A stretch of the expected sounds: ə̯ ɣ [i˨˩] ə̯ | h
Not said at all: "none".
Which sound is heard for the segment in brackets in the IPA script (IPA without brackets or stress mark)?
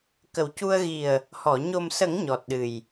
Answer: i˨˩